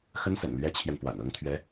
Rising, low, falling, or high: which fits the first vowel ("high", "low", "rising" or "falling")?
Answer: high